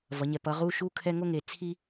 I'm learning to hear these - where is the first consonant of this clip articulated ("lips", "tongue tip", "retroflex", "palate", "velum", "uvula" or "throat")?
lips